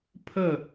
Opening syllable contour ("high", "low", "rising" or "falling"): falling